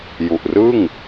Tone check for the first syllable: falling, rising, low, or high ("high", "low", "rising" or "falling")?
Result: low